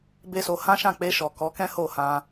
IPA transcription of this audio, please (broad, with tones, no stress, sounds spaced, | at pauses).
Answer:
b e˦ s o˧ h ã˦ ʃ ã˦˨ k͡p e˧ ʃ ɔ˨ k ɔ˨˦ k ɛ̃˦ h o˦˨ h ã˧